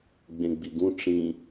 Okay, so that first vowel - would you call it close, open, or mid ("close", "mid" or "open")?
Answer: mid